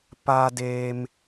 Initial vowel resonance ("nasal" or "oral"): oral